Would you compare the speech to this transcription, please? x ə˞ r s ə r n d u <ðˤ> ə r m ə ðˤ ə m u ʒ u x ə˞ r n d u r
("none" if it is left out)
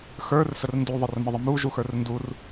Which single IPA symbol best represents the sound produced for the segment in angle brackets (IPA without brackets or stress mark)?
ðˤ